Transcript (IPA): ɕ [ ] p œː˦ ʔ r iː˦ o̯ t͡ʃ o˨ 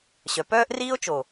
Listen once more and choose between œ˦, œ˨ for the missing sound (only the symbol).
œ˨